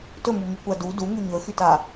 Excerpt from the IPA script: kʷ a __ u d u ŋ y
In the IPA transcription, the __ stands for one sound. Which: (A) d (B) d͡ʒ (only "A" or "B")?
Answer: A